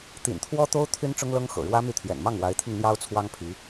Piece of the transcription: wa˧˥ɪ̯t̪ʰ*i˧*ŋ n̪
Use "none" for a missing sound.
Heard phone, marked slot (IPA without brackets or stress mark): i˧